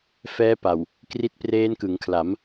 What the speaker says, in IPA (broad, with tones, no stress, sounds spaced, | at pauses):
f ɛː˦˥ p a˨˩ w | k r i˦˥ t̚ p r eː˦˥ n k ɯ˩˦ ŋ kʰ l a˩˦ m